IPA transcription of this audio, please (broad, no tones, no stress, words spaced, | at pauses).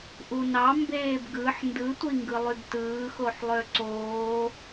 ʔunɑ mbeːbɡɯħ ndɯtʷi ŋɡɯlˠybtɯː xoħlˠøǀoː